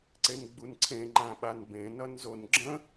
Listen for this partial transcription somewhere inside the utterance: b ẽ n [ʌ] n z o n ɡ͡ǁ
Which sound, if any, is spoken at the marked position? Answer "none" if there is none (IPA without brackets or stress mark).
ʌ